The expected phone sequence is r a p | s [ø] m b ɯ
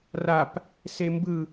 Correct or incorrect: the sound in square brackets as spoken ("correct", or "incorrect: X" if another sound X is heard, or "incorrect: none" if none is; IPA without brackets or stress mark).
incorrect: e